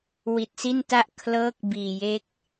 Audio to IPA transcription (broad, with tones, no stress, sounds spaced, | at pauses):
w i˨˩ t̚ s i˥˩ n t a˥˩ ʔ kʰ l ɤː˦˥ k̚ b iː˨˩ j e˦˥ k̚